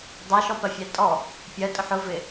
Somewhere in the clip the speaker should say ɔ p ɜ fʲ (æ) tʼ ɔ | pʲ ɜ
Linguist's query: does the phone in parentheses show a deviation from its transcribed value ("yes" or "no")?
no